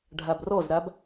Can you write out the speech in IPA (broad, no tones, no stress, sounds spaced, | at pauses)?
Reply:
ɖʱ a b r ɔ z ɾ a b